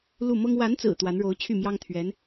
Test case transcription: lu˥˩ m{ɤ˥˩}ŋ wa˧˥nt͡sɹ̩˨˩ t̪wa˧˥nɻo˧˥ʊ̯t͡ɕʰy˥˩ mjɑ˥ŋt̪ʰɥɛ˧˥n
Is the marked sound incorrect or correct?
incorrect